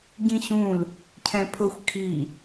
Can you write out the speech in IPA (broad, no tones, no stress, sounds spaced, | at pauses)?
ɟ ĩ ɕ ũ l | cʰ ɛ̃ pʰ ʊ xʷ kʰ i